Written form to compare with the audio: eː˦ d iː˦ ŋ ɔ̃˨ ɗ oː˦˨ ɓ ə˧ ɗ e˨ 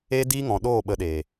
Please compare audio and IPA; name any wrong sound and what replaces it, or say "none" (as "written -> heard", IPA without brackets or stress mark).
none